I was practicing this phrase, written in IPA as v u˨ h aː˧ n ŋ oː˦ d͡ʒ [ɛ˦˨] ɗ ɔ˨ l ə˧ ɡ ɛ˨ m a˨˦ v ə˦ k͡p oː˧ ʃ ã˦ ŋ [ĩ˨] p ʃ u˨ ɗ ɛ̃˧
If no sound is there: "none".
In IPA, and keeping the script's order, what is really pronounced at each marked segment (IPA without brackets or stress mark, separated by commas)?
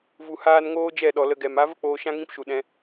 ɛ˦˨, ĩ˦